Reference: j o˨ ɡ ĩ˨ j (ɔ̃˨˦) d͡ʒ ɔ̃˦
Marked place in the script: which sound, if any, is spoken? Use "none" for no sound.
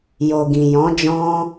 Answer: ɔ̃˨˦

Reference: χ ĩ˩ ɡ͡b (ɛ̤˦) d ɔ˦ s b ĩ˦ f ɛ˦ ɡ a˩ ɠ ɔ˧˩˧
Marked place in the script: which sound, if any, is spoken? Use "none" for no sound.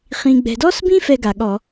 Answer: ɛ̤˩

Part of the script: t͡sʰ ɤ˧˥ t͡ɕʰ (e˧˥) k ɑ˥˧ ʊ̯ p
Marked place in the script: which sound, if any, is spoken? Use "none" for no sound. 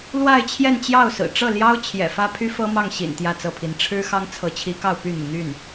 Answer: i˧˥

